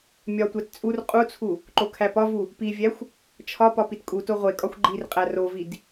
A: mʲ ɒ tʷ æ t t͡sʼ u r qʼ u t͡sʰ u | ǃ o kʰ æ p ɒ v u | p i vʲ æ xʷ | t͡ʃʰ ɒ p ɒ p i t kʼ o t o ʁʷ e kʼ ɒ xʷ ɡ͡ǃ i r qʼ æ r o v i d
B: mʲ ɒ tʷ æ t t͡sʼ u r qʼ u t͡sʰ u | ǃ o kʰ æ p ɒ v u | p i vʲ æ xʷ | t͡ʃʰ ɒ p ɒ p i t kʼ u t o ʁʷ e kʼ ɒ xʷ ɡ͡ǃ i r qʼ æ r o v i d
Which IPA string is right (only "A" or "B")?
B